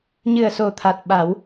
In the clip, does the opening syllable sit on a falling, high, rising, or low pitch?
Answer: low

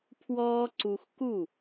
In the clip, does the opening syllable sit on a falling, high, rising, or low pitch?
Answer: high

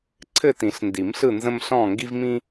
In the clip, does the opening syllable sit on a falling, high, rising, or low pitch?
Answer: falling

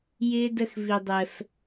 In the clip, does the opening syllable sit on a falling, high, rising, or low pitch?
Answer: high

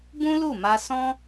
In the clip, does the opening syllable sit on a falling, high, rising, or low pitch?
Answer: high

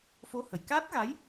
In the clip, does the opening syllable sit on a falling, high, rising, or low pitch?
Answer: rising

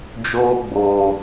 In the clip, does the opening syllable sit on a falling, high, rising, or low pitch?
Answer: high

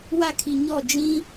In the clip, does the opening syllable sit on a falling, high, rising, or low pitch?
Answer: falling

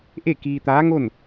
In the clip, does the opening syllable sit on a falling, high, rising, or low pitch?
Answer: falling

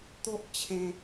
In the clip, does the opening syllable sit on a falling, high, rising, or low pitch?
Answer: high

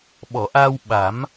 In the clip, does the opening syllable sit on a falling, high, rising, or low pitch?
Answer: low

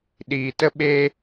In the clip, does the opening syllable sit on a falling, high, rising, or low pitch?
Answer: low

